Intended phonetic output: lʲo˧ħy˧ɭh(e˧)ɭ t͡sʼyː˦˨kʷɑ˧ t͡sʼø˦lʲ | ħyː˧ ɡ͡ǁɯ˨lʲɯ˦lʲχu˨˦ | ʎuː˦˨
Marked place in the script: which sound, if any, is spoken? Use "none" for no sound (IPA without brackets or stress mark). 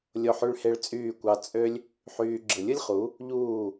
e˧